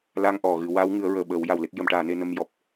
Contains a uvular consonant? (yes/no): no